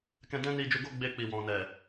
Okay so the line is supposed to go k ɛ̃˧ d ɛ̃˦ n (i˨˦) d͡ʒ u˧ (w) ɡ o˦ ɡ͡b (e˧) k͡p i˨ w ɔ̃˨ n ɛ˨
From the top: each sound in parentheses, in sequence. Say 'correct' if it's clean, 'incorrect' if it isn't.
incorrect: i˧, incorrect: none, correct

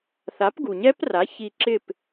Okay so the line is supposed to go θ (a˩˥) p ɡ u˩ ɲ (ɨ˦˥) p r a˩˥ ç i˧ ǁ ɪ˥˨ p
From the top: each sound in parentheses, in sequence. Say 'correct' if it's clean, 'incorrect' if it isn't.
correct, incorrect: ɛ˦˥

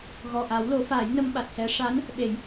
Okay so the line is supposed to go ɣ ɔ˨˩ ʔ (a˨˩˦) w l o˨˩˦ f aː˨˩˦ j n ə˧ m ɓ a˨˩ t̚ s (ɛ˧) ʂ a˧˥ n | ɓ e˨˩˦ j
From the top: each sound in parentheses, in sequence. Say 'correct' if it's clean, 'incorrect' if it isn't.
correct, incorrect: ɛ˧˥

